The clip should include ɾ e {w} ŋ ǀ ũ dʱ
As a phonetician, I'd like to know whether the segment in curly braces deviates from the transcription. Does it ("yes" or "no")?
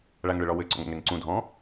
yes